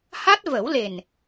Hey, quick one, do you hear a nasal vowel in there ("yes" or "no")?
no